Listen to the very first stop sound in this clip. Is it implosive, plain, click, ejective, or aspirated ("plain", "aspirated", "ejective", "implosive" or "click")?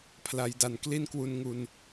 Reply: aspirated